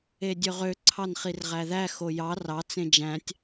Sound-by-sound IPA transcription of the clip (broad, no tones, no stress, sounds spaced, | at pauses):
e dʲ ø ʁ ø ǀʰ ɑ n χ i r ʁ æ ð æ x o j ɑ r ɑ t͡s ẽ d͡ʒ æ̃ tʲ